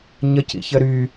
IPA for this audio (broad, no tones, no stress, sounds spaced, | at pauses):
ɲ ə c ḭ ç ə ɾ y